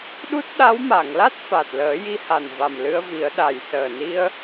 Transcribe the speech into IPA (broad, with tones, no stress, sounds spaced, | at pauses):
ɗ u˦˥ t̚ ɗ a˧˥ w m a˨˩˨ ŋ l a˦˥ t̚ f a˨˩ t̚ l əː˨˩˦ j i˧˥ h a˨˩ n v a˨˩ m l ɨ˧ ə̯ v i˨˩˦ ə̯ ɗ a˨˩ j s əː˨˩ n i˧ ə̯